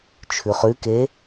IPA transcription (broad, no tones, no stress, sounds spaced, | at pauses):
t͡ʃʰ ʉ χ ʉ k e